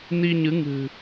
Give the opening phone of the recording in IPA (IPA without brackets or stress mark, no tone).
n